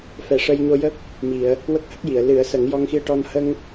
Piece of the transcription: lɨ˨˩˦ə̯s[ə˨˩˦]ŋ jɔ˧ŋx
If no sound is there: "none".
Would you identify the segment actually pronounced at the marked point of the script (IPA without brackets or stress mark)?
ə˨˩˦